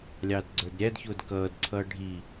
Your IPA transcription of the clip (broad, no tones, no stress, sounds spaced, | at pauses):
lʲ ɑː d ɡ͡ǀ ə˞ d ɾʲ æ d ç ʊː d k ʌː d ǀʰ ʌː ɖʱ i